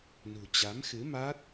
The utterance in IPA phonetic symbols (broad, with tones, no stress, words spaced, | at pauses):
nṳ˨˩t͡ɕa˨˦mxɨ˨˦maː˦˥t̚